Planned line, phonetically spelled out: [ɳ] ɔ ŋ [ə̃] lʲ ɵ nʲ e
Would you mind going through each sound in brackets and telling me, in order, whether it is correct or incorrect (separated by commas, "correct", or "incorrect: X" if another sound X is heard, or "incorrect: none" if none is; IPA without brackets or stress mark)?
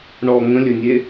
correct, correct